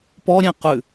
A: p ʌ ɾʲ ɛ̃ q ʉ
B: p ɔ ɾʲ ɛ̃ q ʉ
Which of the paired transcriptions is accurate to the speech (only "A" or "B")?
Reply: B